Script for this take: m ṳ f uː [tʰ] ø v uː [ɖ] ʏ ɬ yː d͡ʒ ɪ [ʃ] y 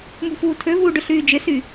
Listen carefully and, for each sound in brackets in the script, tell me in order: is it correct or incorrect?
correct, correct, incorrect: s

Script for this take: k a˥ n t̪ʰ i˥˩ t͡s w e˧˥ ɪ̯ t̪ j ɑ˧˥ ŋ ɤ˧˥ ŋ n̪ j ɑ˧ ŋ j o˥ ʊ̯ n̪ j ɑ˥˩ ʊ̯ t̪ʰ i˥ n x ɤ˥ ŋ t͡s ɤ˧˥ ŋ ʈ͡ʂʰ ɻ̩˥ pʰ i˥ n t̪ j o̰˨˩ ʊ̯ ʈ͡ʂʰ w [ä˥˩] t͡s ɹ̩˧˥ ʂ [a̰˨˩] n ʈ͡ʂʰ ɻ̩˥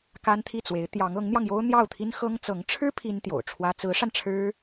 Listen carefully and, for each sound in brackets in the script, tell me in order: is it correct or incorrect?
incorrect: ä˥, incorrect: a˧

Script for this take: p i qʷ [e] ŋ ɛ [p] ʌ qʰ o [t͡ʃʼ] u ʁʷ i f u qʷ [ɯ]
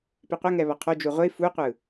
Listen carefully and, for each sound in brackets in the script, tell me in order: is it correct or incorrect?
incorrect: ɛ, incorrect: β, incorrect: d͡ʒ, correct

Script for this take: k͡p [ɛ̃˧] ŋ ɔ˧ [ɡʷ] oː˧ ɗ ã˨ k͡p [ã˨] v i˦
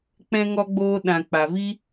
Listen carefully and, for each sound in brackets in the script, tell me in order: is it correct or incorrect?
correct, incorrect: ɡ͡b, incorrect: a˨

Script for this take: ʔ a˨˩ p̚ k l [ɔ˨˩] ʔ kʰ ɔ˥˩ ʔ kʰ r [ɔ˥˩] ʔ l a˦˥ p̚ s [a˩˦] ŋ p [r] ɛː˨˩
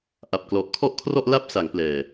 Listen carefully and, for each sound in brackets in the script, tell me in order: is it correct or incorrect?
correct, correct, correct, incorrect: l

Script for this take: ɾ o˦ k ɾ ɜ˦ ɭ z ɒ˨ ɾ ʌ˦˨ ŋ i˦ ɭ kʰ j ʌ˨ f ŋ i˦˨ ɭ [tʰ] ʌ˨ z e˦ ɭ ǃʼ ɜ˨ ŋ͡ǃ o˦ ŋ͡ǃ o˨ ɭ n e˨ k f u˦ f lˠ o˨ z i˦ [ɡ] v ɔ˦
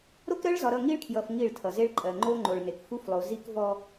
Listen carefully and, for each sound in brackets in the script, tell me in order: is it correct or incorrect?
correct, incorrect: k

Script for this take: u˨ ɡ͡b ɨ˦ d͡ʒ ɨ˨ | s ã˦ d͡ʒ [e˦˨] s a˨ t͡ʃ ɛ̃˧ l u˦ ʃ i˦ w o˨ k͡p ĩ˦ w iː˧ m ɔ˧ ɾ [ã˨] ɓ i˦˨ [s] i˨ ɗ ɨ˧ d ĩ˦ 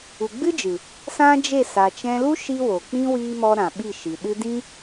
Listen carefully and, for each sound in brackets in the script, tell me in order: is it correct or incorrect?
correct, correct, incorrect: ʃ

